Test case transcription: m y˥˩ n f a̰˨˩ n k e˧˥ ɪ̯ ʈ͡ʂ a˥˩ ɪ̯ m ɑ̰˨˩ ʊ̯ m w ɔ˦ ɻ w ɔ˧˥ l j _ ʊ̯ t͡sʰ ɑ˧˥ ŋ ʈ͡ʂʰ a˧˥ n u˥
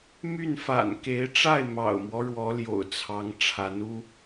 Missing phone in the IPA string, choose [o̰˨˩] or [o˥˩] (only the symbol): o̰˨˩